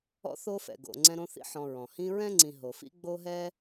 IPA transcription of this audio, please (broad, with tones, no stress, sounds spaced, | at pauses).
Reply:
ɔ̰˦ θ o˦ f ɛ̰˩ ɡ o̰˨ ŋ͡ǀ ɛ̃˦ ɾ õ˦ θ ḭ˦ ħ ɔ̃˨ ɹ ɔ̃˩ h ĩ˦ ɹ ɛ̃˥ ŋ͡ǀ ĩ˨ ɦ o˩ f ḭ˦ ɡ͡b o˥ ɦ ɛ˥